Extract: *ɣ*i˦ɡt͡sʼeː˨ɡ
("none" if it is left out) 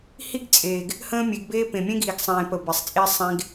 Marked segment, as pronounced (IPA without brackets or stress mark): h